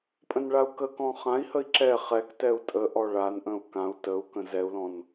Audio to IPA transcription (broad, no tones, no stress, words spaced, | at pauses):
pʼə̃nɭau̯kəkɔ̃ χãi̯həi̯ ǁɛ χɛk tɛu̯tʼəʔɔ ɭanʔə̃u̯ kãu̯ təu̯ kə̃zɛu̯lɔ̃n